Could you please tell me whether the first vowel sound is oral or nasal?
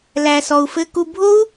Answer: oral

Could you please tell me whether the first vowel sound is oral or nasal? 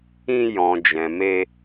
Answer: nasal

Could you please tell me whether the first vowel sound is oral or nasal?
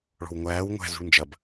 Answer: oral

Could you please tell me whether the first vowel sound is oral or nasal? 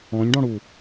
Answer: nasal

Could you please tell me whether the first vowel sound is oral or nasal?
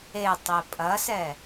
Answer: oral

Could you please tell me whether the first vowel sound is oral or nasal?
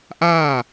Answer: oral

